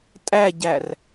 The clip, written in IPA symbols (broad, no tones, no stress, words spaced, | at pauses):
tʼæɟær